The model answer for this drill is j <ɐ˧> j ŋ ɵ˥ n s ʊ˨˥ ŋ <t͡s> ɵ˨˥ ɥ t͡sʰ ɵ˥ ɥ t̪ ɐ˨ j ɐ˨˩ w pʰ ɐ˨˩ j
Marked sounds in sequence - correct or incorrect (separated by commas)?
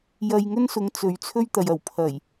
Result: correct, correct